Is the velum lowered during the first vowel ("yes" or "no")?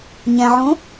yes